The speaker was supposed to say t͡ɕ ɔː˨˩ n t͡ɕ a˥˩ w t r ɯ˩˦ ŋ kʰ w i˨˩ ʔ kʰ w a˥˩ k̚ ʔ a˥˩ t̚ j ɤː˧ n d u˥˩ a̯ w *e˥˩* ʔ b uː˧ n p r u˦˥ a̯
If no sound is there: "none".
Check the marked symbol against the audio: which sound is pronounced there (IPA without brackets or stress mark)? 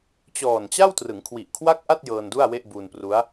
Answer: e˥˩